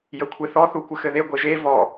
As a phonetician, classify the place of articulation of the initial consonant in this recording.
palatal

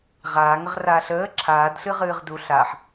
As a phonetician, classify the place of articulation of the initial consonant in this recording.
uvular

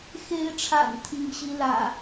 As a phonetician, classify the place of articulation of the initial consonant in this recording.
velar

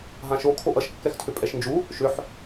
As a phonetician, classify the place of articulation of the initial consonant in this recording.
glottal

